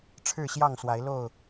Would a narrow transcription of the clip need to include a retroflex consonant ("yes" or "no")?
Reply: yes